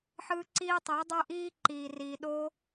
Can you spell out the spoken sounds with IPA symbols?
ħ ɯː˦ ǀ iː˦ tˤ i˨˦ dˤ ə˞˦ ʔ iː˦ ǃ iː˨ r iː˨ ɗ o˧

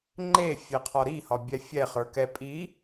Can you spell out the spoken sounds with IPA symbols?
ŋ͡ǃ e fʲ ɛ qʰ ɒ ɾ i h ɒ bʲ ɛ fʲ ɛ χ ə˞ k ɛ pʼ i

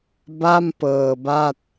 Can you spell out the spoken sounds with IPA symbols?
b a˥˩ m p ɤː˧ b a˥˩ t̚

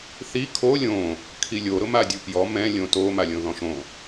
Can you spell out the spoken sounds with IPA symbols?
θ i kʰ o lʲ õ | kʰ i lʲ o ɾ ʊ m a dʲ u p j ɔ m ɛ̃ lʲ õ t o m a lʲ õ ð ɔ̃ ʃ õ

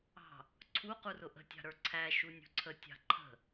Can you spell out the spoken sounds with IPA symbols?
ɑ̤ | ǀʰ u q u r ʊ ʔ ə̤ tʲ ɑ̤ ɾ ə˞ ǀʰ æ ʃ u nʲ ṳ ǀʰ ə tʲ ɑ̤ ǃʰ ə̤

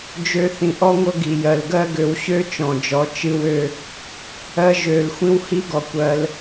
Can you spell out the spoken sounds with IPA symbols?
d͡ʒ ø˧ θ ĩ˨ ʔ ɔ˦ ŋʷ ɤ˦ ɡ i˨ j ɜ˨ l ɡ ɜ˦ ɡ ø˧ w ɕ ø˦ t͡ʃ ɔ̃˨ d͡ʒ ɔ˨˦ t͡ʃ ɨ˦ w ø˦ | ɜ˧ ʒ ø˨ l xʷ ĩ˦ w h i˦ ɡ ɔ˨ kʷ ɜ˧ l

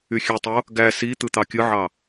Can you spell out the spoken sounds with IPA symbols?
y xʲ ø tˤ o | ɡ æ s i t̪ ɯ t̪ ɑ kʲ ɯ ʕ ɑ

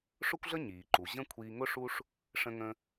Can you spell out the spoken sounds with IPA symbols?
ʂ ʊ˥ kʷ ɮ ə˥ ɲ iː˩ ǃ u˩ ʑ ə̃˥ kʷʰ iː˧ ŋ ʊ˥ ʂ u˥ ʂ | ʂ ə̃˧ ŋ ə̃˧

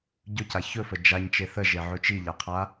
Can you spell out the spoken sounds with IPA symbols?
ɟ ɵ c a ç ɵ f ə d͡ʒ a ɲ t͡ʃ e θ ə ʒ e ʕ ɵ t͡ʃ i ʎ a qʰ a

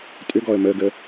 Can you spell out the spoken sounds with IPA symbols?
tʼ ʏ ɡ ɔ ə̯ m ə ɡ ə

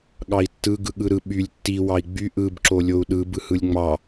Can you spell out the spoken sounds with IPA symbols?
ɠ ɑ i̯ tː ɯ ɡ ɯ ɠ ɯ ɾ ɯ ɓ y lʲ tː i w ɑ i̯ ɡ͡b y ʔ ɯ b ǁ o lʲ o u̯ ɗ ɯ b ɯ h ɯ lʲ ŋ͡m ɑ

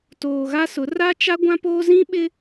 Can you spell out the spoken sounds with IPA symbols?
t oː˨ ɣ a˦ s ʊ˨˦ r a˦ t͡ʃ a˦ ɡʷ ã˦ p oː˦ z ĩ˦ ɓ ɪ˦

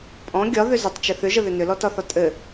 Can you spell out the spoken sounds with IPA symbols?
pʼ ɔ̃ ɡʲ ɒ ð ʏ z ʏ tˤ t͡ʃ ɪ θ ʏ ʒ ə ð ʏ n ʏ l ɔ t ɒ θ ɒ tʼ ɘ

